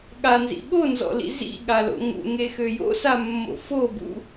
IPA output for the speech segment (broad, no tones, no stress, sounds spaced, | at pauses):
ɠ a n z ḭ ɓ o n z ɔ̰ l ḭ z ḭ ɠ a l o̰ ŋ ṵ ŋ e x ø j o̰ s a mː o̰ f o b ṵ